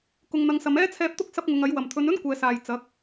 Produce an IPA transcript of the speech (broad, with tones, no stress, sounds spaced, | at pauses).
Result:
k ʊ˨ ŋ n̪ ɐ˨˧ ŋ s ɐ˨˧ m ɛː˥ t͡sʰ ɛː˧ p̚ t̪ ʊ˥ k̚ s ɐ˥ p̚ ŋ ʊ˨˧ ŋ ɐ˨˥ j w ɐ˨˩ m t̪ʰ ɵ˨˧ n ɵ˥ n kʷ ɛː˨˧ s aː˨ j t͡s ɐ˨˥ k̚